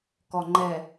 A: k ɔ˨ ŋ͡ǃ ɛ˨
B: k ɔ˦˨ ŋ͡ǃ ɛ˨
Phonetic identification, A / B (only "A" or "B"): A